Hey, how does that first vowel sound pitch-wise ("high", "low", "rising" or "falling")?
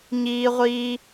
high